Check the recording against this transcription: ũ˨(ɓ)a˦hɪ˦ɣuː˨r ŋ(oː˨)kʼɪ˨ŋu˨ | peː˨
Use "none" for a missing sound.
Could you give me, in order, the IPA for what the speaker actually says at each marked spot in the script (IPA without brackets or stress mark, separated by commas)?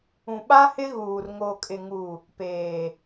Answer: ɓ, o˨